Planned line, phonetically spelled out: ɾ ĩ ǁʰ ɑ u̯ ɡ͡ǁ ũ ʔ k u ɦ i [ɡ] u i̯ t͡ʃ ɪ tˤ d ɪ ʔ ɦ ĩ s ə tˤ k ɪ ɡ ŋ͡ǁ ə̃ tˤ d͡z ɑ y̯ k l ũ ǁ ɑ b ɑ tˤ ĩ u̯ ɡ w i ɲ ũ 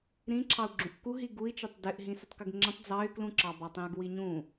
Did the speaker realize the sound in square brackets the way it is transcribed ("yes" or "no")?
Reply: yes